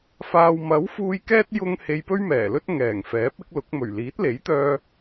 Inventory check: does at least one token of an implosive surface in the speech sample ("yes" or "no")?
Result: no